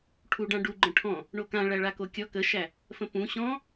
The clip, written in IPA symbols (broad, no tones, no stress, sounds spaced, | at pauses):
ʈʰ u ɖ ã ɖ u ɡ͡ǃ ə̃ ʈʰ ɔ̃ | ɳ o k ã ɭ æ ɭ a k o kʲ ɔ k ə ʃ æ | f ə̃ p ũ ɕ ɔ̃